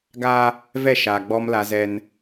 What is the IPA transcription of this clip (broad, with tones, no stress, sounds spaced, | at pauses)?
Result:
ɡ aː˦ | v ɛ˦˨ ʃ aː˨ ɡ͡b ɔ˦ m l a˦ z ɛ˦ n